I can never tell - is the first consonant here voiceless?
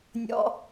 no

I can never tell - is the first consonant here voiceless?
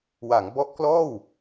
no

